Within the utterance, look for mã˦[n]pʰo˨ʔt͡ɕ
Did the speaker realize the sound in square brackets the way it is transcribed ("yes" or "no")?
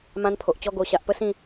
yes